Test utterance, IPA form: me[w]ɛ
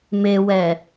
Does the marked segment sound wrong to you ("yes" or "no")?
no